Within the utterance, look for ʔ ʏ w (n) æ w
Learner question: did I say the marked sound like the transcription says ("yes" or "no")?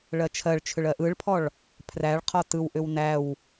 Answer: yes